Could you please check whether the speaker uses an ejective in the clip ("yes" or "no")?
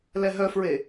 no